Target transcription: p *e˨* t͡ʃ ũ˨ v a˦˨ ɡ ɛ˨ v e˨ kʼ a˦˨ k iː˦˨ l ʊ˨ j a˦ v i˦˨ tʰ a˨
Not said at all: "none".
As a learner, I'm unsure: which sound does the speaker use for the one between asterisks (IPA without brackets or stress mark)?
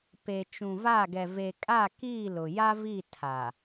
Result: e˨